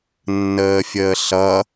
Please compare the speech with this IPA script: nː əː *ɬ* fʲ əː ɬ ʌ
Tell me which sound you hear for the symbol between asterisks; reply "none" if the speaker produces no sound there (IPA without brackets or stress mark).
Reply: none